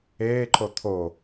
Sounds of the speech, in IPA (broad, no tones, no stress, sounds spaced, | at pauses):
eː ǃ o t̪ʰ o